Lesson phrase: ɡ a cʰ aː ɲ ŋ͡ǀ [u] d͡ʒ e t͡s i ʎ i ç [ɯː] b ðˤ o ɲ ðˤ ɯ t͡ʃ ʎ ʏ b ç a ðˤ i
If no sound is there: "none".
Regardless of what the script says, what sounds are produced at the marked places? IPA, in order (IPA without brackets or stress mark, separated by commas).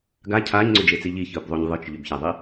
ʏ, ɯː